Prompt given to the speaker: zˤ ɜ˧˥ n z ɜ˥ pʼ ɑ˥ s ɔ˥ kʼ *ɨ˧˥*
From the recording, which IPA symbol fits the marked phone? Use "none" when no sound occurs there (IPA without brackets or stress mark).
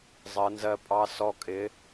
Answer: ɪ˧˥